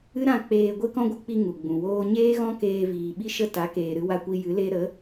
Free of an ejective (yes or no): yes